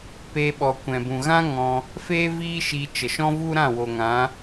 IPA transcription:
pe˧ɓɔ˨ kʷɛ̃˨bũ˨ɣã˦ ŋɔ̃˧ | feː˦ viː˦ ʃi˧ t͡ʃə˨ʃɔ̃˦vu˦ɾã˦˨ wo˨ŋã˨˦

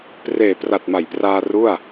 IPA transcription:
preː˨˩pra˨˩t̚ma˩˦jpraː˧ ru˥˩a̯

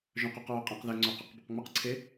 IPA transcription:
ʒœ̃qœqɹœ qʼẽqðɛ ŋ͡ǀœqɛqbɵq ŋ͡mɪqǀʰe

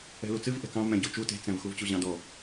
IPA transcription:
ɛ̤lut͡sɨv ʔɛ̤kɑ̃vmɛ̃ ɟot͡ʃu te̤t͡sɛ̃vxuv t͡ɕuʑɑ̃dɔ

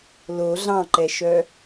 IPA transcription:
lo ɮɑ̃ǃɛʃœ

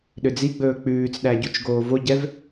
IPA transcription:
ɗød͡ziɡ͡bɵː k͡pʉːt͡sɗæ ɟut͡ʃɡoːvoɟɛv

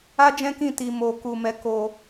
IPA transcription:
a˦d͡ʒɛ̃˦kĩ˦˨ ti˧mo˧ku˧mɛ˦ ko˧

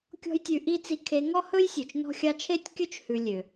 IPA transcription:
kʲɔ̤˥jtʲʉ˧ ʔi˥t͡si˧˥kʰe˧˥ ŋɔ˥hɵ˥jsʲɵ˩t͡ʃ nɔ̤˥xʲɑ˥ t͡ʃʰe˥tʲkʲɵ˥t͡ʃ hʉ˧lʲø˩

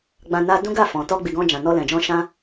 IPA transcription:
ɡ͡bã˧na˦ dũ˦ɡa˦˨fɔ̃˨ tɔ˧ɡ͡bi˨ɡɔ̃˧ d͡ʒã˨nɔ˧lɛ̃˨d͡ʒɔ̃˧ ʃã˦

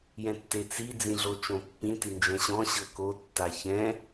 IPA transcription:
jɛ̃tːet͡si d͡zĩɮot͡ʃõpːĩ tind͡ʒɛ̃ɕɔ̃ ɕɤko tːaçɛ̃

